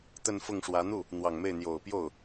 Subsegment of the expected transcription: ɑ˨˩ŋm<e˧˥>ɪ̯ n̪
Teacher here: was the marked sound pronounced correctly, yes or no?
no